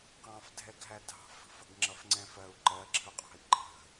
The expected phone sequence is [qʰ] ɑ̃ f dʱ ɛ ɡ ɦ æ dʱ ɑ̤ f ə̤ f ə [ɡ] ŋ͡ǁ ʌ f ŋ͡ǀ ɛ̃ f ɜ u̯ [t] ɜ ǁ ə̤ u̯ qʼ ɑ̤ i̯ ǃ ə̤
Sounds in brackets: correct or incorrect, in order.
incorrect: q, correct, incorrect: ǃ

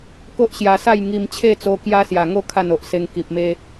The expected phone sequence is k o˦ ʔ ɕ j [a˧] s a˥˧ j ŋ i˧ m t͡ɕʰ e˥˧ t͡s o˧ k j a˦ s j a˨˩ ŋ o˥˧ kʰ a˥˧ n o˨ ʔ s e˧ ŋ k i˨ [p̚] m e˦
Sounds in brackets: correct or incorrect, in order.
correct, correct

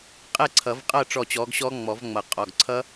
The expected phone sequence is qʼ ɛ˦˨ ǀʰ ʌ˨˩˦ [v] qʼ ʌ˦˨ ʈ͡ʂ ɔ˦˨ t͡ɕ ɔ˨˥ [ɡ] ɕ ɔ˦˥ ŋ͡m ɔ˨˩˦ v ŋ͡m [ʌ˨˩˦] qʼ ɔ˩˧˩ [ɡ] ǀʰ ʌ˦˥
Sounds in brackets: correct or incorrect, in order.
correct, correct, correct, correct

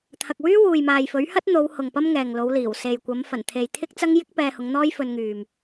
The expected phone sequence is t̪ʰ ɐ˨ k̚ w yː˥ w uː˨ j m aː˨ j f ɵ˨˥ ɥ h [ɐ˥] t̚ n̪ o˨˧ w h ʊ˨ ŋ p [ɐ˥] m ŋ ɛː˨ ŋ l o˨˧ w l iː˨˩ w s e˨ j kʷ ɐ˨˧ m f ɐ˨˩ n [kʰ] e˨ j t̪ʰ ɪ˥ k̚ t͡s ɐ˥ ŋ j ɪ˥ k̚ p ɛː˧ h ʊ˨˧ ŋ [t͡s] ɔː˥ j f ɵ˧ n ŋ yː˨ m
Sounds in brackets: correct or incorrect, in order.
correct, correct, incorrect: t̪ʰ, incorrect: n̪

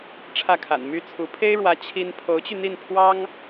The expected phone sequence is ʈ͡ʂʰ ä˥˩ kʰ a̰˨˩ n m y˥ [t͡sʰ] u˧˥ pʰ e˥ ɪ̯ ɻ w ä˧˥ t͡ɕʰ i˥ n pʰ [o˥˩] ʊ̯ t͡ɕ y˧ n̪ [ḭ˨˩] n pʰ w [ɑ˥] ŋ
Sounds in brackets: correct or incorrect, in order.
correct, incorrect: o˧˥, incorrect: i˥˩, correct

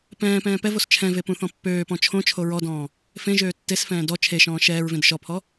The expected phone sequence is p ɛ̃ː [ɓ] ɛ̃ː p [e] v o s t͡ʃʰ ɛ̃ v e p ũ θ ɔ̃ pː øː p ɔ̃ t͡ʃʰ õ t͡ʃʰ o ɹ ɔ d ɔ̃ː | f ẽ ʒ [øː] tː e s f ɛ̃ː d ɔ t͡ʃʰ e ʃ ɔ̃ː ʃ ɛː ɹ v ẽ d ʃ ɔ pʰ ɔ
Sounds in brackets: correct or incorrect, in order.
incorrect: p, incorrect: ɛ, correct

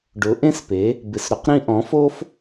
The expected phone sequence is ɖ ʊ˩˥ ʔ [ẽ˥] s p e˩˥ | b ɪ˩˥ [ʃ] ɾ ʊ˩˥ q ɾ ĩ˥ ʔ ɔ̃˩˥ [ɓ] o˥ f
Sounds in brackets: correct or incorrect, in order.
correct, incorrect: s, incorrect: f

